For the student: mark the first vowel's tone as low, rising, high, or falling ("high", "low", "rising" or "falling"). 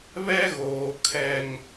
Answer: high